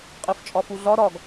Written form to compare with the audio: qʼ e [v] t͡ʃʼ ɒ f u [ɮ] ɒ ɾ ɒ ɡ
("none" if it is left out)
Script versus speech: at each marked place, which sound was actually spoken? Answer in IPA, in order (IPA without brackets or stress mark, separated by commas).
f, ɮ